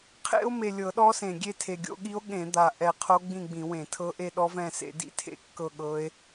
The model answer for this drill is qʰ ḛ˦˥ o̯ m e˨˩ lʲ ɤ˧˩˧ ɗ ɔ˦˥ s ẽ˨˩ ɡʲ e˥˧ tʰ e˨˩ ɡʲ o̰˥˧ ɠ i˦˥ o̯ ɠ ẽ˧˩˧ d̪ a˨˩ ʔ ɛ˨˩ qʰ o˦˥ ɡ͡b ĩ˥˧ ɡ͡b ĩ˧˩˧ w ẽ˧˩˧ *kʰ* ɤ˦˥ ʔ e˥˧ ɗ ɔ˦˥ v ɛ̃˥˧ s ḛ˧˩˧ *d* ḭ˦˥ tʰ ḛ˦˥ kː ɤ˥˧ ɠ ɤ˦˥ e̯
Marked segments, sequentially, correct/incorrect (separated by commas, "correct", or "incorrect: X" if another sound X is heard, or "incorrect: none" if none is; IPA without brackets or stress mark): incorrect: tʰ, correct